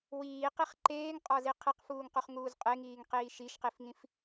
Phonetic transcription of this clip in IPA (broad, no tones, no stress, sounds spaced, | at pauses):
w iː q i χ ǃ eː ŋ qʼ ɒ z i qʰ e q f uː ŋ q u χ ŋ uː z qʼ e ŋ iː ŋ q iː ʃ i ʃ q i f ŋ ĩ f